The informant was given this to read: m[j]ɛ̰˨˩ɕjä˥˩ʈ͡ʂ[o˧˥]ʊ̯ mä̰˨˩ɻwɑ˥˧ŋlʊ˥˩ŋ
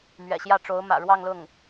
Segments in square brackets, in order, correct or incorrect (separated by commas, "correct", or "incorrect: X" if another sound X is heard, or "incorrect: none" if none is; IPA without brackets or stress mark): incorrect: ɥ, correct